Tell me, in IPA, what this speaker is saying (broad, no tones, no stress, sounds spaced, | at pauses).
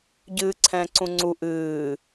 ɟ ɨː ǀʰ ɛ̃ː ǀ ũ ŋ͡ǀ u ʔ ɨː